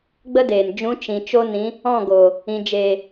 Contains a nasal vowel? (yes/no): yes